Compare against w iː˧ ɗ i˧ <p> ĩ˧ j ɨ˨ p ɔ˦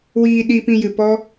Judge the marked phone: correct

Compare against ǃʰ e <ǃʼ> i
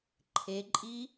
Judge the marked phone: correct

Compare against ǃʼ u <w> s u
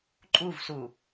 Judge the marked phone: incorrect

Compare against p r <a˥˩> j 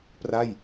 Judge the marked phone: correct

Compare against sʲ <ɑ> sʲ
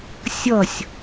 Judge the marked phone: incorrect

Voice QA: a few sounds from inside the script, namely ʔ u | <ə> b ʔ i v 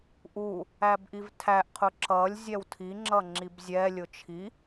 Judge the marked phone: incorrect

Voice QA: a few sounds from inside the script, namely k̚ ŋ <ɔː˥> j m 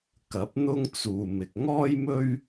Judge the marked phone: correct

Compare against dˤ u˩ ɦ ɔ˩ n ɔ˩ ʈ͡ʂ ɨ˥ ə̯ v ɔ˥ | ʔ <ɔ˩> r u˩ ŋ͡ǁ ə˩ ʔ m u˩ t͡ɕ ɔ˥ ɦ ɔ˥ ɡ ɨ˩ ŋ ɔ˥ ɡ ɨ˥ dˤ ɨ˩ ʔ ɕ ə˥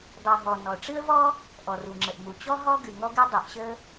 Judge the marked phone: correct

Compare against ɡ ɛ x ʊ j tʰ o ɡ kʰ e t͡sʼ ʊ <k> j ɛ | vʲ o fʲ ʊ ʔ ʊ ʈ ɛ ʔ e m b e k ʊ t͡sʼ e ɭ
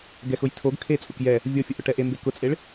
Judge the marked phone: correct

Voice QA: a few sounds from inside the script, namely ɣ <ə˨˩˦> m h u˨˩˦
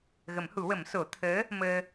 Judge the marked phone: correct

